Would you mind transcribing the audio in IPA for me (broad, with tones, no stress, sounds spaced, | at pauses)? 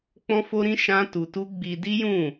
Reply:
k͡p ɔ̃˦ f o˦ ɾ ĩ˦ ʃ ã˦ t u˧ t u˦ ɡ͡b i˧ d i˦ j ũ˦˨